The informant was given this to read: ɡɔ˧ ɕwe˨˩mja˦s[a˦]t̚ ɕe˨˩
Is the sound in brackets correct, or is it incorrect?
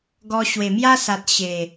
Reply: incorrect